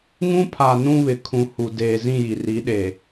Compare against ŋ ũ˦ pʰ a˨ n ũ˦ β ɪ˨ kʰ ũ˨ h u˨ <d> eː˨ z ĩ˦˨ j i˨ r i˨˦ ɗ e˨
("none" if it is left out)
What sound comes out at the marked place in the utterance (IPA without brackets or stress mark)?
d